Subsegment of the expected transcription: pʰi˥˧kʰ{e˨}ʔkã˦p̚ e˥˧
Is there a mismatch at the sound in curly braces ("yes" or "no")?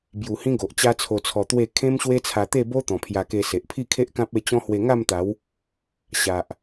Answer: yes